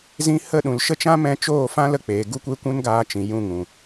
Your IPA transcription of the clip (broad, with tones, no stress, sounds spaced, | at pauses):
z ĩ˧ h ə˦˨ ɗ ũ˨ l ʃ ə˦ t͡ʃ ã˦ m ɛ̃˧ t͡ʃ oː˦˨ f ã˦ l ə˧ k͡p eː˨ ɡ u˦ kʷ e˦ kʷ ũ˦ n ɡ aː˧ t͡ʃ ĩ˨ j ũ˦˨ ŋ ũ˨